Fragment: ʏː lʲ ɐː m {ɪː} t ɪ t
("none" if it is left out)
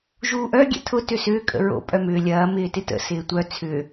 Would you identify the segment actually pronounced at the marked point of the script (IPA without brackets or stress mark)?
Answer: ɪː